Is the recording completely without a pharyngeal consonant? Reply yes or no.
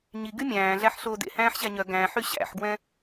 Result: no